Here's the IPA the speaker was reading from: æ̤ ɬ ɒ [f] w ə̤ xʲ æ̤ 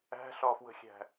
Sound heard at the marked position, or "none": f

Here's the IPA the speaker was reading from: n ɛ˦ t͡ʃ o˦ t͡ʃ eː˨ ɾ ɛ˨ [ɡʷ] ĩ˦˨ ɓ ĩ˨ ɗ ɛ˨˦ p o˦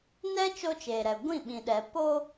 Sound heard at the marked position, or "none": ɡʷ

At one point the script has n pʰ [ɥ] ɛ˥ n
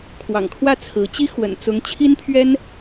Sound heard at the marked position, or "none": ɥ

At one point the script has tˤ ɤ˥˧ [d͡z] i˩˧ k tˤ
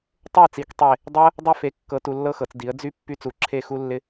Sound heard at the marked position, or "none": t͡s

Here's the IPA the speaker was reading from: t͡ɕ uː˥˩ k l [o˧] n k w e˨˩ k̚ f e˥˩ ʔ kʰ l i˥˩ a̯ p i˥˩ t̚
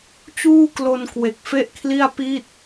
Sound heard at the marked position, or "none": o˧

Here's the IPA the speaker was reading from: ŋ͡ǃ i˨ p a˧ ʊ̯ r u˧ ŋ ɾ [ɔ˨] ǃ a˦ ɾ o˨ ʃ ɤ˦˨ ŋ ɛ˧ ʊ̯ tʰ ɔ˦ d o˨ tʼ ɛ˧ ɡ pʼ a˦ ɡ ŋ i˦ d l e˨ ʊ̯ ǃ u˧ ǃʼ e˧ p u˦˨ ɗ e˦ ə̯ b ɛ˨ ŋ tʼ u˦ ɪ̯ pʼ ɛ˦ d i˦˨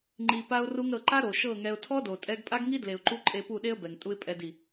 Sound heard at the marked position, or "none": ɤ˨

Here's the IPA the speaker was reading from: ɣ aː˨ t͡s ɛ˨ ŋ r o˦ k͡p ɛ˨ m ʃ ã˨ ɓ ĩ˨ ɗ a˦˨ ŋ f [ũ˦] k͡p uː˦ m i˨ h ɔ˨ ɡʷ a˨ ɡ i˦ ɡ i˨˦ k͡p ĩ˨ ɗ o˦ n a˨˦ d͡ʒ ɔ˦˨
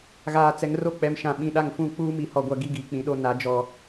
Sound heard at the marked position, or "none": ũ˦˨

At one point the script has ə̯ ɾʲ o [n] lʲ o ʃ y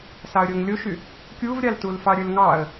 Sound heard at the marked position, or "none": ŋ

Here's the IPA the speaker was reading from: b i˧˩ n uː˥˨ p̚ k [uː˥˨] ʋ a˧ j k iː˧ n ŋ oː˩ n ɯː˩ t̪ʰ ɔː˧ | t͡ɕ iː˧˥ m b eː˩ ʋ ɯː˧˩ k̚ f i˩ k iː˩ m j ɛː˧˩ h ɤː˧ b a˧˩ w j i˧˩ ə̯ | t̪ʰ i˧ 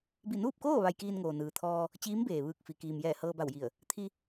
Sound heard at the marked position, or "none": oː˥˨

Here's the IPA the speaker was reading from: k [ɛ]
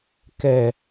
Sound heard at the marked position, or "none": ɛ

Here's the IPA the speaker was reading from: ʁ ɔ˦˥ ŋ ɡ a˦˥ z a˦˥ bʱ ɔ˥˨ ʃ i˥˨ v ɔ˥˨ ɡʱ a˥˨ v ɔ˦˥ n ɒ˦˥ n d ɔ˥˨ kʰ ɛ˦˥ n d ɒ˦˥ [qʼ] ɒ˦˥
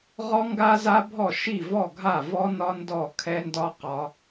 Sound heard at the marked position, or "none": q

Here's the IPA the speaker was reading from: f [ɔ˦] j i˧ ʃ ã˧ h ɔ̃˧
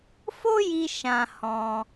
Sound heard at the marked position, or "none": o˦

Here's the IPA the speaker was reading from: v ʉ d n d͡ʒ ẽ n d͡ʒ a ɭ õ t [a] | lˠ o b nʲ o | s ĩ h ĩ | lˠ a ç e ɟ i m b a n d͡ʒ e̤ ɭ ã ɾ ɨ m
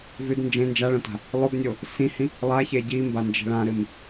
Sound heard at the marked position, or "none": a̤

